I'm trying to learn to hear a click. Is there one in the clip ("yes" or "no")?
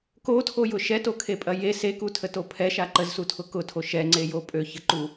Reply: yes